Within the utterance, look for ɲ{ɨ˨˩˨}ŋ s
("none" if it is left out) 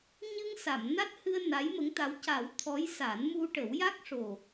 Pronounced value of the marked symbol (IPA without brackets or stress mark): ɨ˧